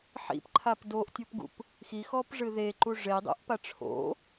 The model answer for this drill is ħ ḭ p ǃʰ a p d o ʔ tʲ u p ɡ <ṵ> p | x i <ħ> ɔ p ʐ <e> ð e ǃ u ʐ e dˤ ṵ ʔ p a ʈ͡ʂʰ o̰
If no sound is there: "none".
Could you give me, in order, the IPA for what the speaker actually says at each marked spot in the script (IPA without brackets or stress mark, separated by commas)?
ṵ, x, ɨ